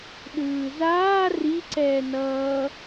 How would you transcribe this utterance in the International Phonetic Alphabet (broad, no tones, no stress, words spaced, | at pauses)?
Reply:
ɗɯːzaː riǀɛː nʌː